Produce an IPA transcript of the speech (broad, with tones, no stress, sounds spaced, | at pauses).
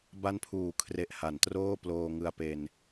b a˦˥ n pʰ uː˩˦ kʰ r e˨˩ ʔ h a˩˦ n t r oː˥˩ p l oː˧ ŋ ɯ˧ a̯ p e˧ n